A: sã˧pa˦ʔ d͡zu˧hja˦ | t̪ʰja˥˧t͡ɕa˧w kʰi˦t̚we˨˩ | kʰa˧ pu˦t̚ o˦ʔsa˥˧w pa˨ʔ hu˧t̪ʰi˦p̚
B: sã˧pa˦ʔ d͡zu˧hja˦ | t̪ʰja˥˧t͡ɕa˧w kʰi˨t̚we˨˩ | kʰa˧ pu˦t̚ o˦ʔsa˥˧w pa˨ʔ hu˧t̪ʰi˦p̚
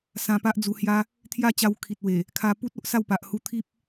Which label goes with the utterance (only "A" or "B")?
B